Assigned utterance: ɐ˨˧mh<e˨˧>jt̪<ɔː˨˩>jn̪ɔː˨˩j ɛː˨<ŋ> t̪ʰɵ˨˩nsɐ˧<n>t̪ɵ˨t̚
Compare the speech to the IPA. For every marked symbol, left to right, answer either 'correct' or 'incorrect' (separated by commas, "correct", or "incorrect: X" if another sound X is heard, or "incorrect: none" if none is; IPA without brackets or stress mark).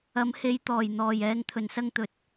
correct, correct, correct, incorrect: ŋ